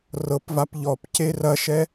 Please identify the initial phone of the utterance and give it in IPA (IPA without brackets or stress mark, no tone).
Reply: r